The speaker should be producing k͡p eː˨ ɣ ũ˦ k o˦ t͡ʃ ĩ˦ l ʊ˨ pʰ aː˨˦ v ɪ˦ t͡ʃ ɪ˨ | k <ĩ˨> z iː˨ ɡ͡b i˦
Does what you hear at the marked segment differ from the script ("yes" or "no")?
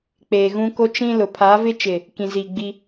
no